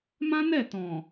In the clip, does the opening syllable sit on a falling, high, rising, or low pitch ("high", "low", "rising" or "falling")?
high